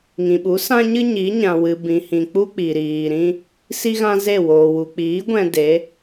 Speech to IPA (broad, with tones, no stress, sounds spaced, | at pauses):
ŋ ĩ˨ ɓ u˨˦ s ã˦ ɲ ɨ˦ ɲ i˨˦ ɲ ã˨ w ɨ˨ b ĩ˨ h ĩ˨ k͡p u˦ k͡p i˨ ɾ iː˨ ɾ ĩ˦ | s i˦ ɣ ã˦ z e˦˨ w oː˨ w u˨ k͡p iː˨˦ ɡʷ ɛ̃˧ d e˨˦